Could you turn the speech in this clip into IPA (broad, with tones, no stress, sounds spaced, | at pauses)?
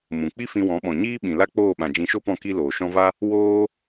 m ũ˨ k͡p i˦ f ĩ˧ w ɔ̃˨˦ ɓ ɔ̃˨ ɲ iː˦ ɓ ĩ˨ l a˦ k͡p oː˦˨ ɓ ã˨ d͡ʒ ĩ˧ ʃ o˦ p ɔ̃˦˨ k i˦ l oː˨ ʃ ɔ̃˦ v a˦ | w oː˦